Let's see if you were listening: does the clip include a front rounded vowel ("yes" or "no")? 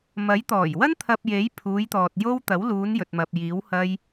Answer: no